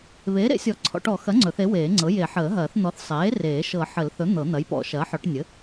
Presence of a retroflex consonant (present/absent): present